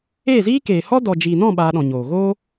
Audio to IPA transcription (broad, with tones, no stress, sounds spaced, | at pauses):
eː˦˨ z iː˦ k eː˨ h ɔ˦ d ɔ˨ d͡ʒ iː˨ n ɔ̃˦˨ ɓ aː˧ ɗ ɔ̃˨ ɲ oː˨ ɣ oː˦